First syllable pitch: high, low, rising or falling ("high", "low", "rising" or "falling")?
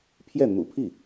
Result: falling